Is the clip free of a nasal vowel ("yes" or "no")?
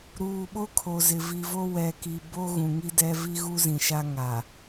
no